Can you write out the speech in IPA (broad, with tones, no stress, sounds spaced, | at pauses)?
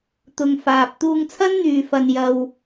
t̪ ʊ˨ ŋ f aː˨ p̚ t̪ uː˧ ŋ t͡sʰ ɐ˥ n n̪ yː˨ f ɐ˧ n j ɐ˧ w